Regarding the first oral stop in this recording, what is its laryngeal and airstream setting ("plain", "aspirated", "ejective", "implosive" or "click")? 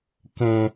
plain